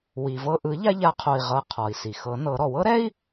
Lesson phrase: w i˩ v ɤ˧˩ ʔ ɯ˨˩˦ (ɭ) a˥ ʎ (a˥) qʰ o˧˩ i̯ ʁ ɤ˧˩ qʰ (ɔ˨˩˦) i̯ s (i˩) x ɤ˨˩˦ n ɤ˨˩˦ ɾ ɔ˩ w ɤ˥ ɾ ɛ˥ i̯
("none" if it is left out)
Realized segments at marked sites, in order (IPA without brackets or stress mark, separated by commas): ʎ, a˧˥, ɔ˩, i˩